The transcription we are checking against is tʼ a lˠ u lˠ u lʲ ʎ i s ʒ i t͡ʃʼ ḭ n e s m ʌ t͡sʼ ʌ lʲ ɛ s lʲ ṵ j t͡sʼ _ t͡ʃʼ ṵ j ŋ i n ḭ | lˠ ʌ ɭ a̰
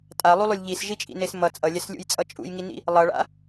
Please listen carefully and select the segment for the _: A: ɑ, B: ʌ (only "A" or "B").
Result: B